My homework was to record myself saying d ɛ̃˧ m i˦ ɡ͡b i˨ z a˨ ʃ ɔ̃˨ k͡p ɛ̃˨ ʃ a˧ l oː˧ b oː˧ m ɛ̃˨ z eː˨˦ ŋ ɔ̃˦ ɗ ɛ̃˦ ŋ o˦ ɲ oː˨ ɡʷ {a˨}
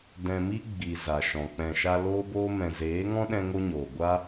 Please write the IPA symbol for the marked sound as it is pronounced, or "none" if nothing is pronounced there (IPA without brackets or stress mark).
a˦